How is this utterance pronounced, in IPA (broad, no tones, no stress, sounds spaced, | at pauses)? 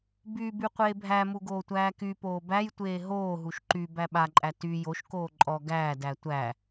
b y b y qʷ eː bʱ æ m u ɡ oː tʷ æː k y p oː b æ j tʷ eː ɦ oː ɦ u ʃ ǃ y b æ ɓ a ǃʼ æ t y j o ʃ k oː ǃʼ ɔ ɡ æː d æ tʷ æ